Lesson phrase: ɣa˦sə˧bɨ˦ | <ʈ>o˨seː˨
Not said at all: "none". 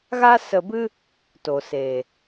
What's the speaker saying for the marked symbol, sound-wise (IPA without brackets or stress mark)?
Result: t